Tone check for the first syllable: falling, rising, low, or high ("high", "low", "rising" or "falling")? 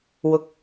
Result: high